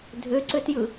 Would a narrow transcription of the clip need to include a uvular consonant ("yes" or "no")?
no